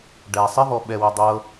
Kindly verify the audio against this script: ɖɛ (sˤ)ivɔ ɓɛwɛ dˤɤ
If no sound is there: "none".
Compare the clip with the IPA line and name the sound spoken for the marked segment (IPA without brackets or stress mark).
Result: sˤ